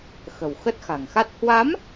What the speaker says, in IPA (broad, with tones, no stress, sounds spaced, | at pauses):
x ə̤˨˩ w x ə˦˥ t̚ x a̤˨˩ ŋ x a˦˥ t̚ h w a˨˦ m